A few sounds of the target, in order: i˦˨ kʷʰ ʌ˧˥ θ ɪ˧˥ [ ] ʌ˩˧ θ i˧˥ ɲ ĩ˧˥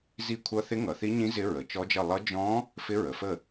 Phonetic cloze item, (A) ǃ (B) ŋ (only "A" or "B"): B